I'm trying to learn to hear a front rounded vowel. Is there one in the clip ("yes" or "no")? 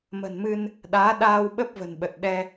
no